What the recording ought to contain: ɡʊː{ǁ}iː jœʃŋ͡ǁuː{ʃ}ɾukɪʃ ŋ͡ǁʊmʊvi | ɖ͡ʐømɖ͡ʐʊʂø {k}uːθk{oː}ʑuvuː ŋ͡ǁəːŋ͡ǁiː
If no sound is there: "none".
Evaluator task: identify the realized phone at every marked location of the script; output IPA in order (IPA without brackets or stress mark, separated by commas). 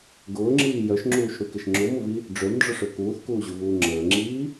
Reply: ŋ͡ǁ, ʃ, k, uː